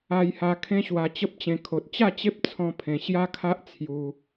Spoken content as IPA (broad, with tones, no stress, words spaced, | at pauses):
a˧jha˧ kʰẽ˦ɕwa˧t͡ɕə˦p̚t͡ɕẽ˧ kʰo˨t̚ t͡ɕa˥˧t͡ɕe˦p̚ t͡sʰɔ̃˦pʰẽ˧ ɕja˦kʰa˦ʔ t͡sʰju˧